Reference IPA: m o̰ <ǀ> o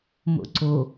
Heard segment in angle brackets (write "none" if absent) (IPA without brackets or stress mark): ǀ